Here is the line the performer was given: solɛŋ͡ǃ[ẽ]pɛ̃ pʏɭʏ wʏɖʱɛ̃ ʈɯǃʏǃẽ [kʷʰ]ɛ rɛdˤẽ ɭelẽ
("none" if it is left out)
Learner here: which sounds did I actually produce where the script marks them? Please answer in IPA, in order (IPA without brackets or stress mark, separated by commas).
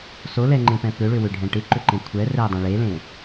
ẽ, kʷʰ